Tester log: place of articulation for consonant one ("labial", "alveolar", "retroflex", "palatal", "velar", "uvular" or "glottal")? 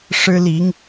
retroflex